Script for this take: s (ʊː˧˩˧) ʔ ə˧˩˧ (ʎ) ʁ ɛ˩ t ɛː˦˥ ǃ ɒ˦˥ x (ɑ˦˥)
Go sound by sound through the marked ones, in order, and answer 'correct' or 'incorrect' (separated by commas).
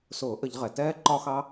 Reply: correct, correct, correct